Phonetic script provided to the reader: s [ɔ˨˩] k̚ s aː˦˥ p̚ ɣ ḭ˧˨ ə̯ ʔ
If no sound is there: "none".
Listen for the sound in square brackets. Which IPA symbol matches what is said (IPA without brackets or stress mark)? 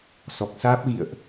ɔ˨˩